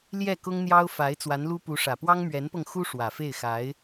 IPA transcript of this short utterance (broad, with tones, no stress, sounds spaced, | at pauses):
l j ɛ˥˩ k ʊ˥ ŋ n̪ j ɑ˥ ʊ̯ f a˧˥ ɪ̯ t͡s w a˧˥ n l u˥ p u˧˥ ʂ ä˨˩ p w ɑ˥ ŋ m ɥ ɛ˧˥ n p ɤ˧ ŋ x u˥ ʂ w ä˨˩ f e˥˩ ɪ̯ x a˧˥ ɪ̯